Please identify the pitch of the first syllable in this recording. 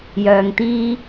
low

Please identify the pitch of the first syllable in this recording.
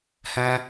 high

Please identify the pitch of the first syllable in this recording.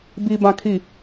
low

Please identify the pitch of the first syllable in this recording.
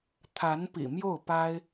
rising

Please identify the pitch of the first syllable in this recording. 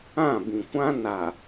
falling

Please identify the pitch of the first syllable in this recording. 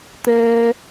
high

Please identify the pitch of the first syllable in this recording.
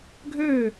falling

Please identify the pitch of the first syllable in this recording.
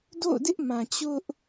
falling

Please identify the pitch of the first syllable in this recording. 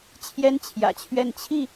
high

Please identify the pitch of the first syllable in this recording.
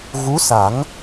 rising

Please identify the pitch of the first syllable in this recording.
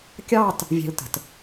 falling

